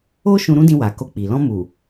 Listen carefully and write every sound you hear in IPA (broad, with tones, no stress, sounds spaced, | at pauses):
o˦ ʃ ũ˧ ɾ ũ˦ d ĩ˧ w a˨ k o˧ k͡p i˨ l ɔ̃˧ m u˨